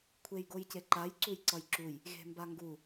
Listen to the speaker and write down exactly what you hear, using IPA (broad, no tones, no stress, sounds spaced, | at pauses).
kʷʰ e j ɡ o j c e ǃ a j ǀ u j ǀ ʌ j ǁ u j | ɣ e̤ m b a ŋ ɡ u